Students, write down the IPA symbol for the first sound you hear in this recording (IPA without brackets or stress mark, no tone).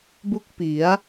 b